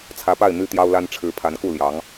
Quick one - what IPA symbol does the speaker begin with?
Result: t͡sʰ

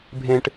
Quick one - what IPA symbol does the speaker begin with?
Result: bʱ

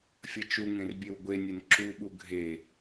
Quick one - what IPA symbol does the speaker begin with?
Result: fʲ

